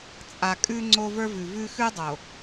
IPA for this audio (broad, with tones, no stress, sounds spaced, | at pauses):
t͡sʼ a˨ kʼ ʉ˦ ŋ͡ǀ o˦ v ə˞˦ v ʉ˨ v ʉ˦ x ʉ˦ dˤ o˨